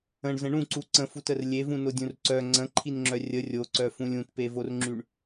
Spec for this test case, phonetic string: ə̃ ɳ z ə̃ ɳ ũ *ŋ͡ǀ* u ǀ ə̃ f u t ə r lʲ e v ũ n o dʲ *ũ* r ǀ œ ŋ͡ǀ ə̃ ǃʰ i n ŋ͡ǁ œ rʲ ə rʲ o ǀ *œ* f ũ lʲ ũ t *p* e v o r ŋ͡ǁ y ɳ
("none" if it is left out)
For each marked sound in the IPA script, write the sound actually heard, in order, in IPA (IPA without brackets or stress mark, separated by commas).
ǀ, ũ, œ, p